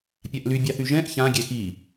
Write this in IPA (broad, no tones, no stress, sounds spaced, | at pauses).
pʲ a ʔ l y bʲ ɑ θ y ʒ ɛ̃ ʔ ç ã ɡʲ ɛ x i